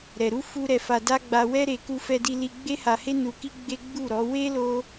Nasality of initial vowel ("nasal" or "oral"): oral